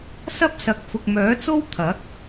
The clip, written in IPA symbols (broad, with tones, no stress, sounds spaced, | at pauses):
s ɐ˥ p̚ s ɐ˨ k̚ f ʊ˨ k̚ m œː˨˥ t͡s o˥ w t̪ʰ ɐ˨˥ k̚